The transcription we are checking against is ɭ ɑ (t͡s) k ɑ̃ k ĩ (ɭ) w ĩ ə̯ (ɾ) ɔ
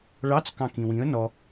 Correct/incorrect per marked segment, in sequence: correct, incorrect, incorrect

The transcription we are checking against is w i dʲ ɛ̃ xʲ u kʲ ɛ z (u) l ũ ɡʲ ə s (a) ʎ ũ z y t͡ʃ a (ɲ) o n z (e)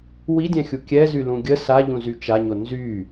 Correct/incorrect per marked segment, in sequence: incorrect, correct, correct, incorrect

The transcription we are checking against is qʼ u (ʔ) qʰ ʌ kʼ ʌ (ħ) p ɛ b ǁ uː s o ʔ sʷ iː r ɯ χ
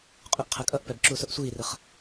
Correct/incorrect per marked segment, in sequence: correct, incorrect

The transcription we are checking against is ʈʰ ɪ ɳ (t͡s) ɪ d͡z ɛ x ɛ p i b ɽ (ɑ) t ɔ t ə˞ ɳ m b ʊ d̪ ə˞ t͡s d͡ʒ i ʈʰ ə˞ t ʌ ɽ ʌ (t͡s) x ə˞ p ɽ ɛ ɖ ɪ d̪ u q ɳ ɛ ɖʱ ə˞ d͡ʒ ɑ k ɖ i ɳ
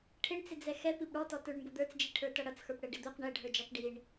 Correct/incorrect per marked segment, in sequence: correct, incorrect, correct

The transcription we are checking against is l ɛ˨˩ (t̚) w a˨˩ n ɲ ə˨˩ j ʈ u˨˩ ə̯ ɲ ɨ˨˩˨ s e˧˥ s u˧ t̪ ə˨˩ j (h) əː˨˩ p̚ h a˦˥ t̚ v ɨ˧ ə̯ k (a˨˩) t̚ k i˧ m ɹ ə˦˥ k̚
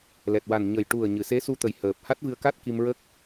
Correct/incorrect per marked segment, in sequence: correct, correct, incorrect

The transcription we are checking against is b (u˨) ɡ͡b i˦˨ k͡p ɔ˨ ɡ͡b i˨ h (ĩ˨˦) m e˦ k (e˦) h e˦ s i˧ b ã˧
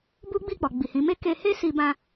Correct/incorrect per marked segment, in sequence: incorrect, correct, incorrect

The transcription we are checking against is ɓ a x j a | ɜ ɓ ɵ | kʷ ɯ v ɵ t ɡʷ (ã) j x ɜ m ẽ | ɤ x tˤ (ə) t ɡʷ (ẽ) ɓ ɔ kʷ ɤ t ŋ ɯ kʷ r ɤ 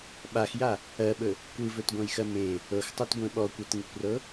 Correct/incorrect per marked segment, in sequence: correct, incorrect, correct

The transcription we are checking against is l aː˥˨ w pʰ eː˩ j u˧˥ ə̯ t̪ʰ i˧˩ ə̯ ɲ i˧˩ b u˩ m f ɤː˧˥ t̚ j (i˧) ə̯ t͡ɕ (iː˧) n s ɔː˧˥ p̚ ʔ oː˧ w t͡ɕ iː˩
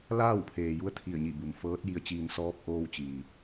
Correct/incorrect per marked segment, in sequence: correct, correct

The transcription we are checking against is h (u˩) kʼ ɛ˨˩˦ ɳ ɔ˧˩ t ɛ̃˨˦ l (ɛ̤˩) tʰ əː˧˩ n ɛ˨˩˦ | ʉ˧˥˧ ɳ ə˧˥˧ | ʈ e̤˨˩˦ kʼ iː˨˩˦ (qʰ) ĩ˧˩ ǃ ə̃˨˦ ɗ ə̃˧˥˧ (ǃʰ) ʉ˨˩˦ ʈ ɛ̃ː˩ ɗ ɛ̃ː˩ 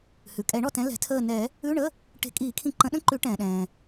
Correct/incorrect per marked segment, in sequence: incorrect, correct, incorrect, incorrect

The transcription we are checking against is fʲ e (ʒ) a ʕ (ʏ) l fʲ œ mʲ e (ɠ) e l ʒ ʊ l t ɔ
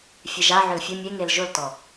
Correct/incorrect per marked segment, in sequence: correct, correct, incorrect

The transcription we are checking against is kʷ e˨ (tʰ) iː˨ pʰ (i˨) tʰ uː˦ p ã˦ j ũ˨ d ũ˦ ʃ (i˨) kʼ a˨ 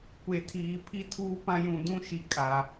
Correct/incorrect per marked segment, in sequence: correct, incorrect, correct

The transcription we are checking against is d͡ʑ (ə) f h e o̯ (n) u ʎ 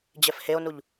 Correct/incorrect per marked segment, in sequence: incorrect, correct

